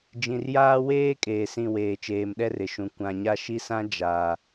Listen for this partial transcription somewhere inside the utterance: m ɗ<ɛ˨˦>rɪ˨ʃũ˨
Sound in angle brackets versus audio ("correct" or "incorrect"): incorrect